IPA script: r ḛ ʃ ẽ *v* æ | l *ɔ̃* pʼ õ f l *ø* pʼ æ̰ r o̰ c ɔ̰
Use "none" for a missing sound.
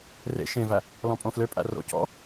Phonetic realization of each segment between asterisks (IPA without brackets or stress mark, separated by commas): v, ɔ̃, ø